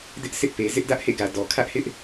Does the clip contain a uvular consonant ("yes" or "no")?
no